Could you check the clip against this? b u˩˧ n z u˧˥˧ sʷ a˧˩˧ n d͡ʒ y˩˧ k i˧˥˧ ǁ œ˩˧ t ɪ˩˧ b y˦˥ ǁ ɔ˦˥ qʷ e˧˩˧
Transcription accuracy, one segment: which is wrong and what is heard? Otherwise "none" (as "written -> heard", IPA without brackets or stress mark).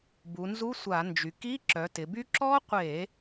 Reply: none